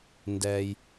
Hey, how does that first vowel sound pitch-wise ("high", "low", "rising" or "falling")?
low